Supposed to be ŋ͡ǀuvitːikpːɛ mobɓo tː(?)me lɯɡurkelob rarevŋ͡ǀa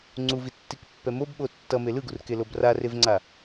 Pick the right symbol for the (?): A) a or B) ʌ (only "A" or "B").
B